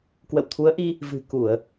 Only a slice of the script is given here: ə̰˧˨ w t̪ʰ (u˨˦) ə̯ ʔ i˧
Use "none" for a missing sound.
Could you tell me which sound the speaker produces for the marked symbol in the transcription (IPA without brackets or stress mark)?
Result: u˨˦